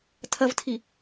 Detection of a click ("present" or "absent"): absent